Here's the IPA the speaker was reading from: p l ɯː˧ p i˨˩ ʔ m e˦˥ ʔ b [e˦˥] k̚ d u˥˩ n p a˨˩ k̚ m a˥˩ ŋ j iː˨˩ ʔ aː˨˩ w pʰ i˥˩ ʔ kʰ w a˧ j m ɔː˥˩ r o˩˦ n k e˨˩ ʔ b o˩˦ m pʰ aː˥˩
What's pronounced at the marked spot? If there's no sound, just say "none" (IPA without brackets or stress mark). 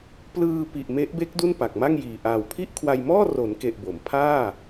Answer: e˦˥